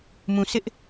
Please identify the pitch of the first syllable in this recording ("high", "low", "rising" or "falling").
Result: low